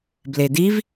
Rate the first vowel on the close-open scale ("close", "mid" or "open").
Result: mid